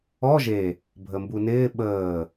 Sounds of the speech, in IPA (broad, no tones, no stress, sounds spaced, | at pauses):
ɔ ʒ e | bʱ ə m b u n ɪː ɓ əː